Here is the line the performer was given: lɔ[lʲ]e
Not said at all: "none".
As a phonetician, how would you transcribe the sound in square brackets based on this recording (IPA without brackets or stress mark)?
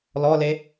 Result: l